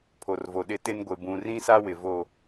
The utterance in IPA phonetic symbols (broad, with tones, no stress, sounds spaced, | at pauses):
pʰ o˨ r v o˨ ɗ ɪ˦ t ɪ˦ n ɡʷ e˨ b ũ˨ r ĩ˦ s a˦ w ɪ˨ v o˦˨